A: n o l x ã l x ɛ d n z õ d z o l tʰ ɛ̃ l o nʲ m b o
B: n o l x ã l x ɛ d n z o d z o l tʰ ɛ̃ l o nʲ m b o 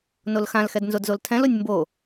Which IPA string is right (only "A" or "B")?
B